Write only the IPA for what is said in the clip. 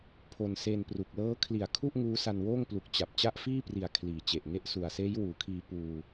pʰo˧nse˧npru˨˩k̚ lɤː˦˥kʰli˨˩a̯kʰu˥˩ʔ ŋuː˦˥sa˧nwoː˥˩ŋplu˨˩k̚ t͡ɕa˨˩p̚ t͡ɕa˦˥ʔfiː˥˩pri˨˩a̯ kʰliː˨˩t͡ɕe˨˩ʔŋe˥˩ʔ su˨˩a̯seː˦˥jwuː˩˦kʰiː˧ puː˧

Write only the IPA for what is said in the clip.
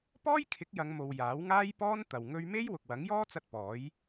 pɔː˥jkʰɪ˨˥k̚ jɐ˨˧ŋmo˨w jaː˨˥wŋaː˥jpɔː˥n t̪ɐ˨w ŋɵ˧ɥme˥j wʊ˨k̚wɐ˨˥ŋjɔː˥t͡sɐ˧t̚ pɔː˨˥j

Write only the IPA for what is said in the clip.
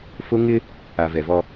fʊ˦ ŋɪ˦ | a˨vɛ˨vɔ˦

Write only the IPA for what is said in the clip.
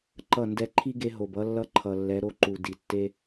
ǃʌ˦˨ndɛ˦ ǃʰi˦ ɡe˦ ɦo˨bʌ˦lːʌ˦ ǃʰʌ˨lːɛ˨˦ɾo˦ǃu˨ di˨tːe˦

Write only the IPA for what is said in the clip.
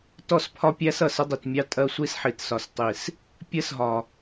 tɔ˦˨spʰɒ˦pʲæ˦s ʌ˨sə˦dˤi˨tmʲɑ˦ tʼɜ˦sʷi˦sħi˨t sɒ˨stˤi˨s | pʲɜ˦sɦɒ˨

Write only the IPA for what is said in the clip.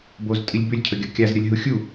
boztʼilʲ bʏlʲcʰəɡʲʌ kʲazɾʲʌlʲɦu xʲu

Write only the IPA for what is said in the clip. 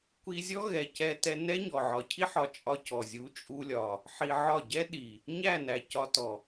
kʷi˧zʲɔ˦ ɣɛ˨cɛ˧tɛ˧ nɛ˦ɲɔ˨ʕɒ˨cʰi˦ ħɒ˧t͡ʃʼɒ˦cɔ˨ zʲu˨˦t͡ʃʼu˧ lʲɒ˨ | ħi˧ʕɒ˦˨ ɟɛ˦ ɗi˨ | ɲæ˦˨næ˨ cɒ˧tɔ˨

